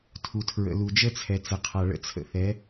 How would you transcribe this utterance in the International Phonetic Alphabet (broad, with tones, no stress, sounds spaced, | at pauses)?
tʰ u˨ tʰ ɹ ə̰˨ l u˨ d͡ʒ ə˦ t͡sʰ ɛ˨ t͡s ə˨ qʰ a˨ ɭ ə̰˦ t͡sʰ ə̰˧ θ ɛ˨˦